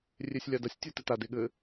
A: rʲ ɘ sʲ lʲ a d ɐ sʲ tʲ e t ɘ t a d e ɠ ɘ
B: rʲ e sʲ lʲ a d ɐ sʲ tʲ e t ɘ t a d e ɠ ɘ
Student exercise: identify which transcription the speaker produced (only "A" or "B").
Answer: B